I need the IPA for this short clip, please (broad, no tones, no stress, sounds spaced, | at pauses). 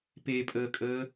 p e pʼ əː kʼ əː